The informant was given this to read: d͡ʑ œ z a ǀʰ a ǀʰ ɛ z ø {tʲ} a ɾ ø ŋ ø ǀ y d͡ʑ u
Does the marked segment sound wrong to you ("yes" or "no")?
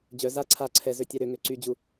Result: no